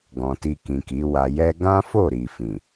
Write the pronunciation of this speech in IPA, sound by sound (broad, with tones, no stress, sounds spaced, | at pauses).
ɡ ɔ̃˨ t i˧ k ĩ˨ k i˨˦ w a˧ j ɛ˦ ɡ ã˦ f o˦˨ ɾ i˨ f ĩ˨